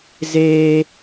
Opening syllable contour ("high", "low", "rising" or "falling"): high